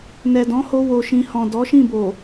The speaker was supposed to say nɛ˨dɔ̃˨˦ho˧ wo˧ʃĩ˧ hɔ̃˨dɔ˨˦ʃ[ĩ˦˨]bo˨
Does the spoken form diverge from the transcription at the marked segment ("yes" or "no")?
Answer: no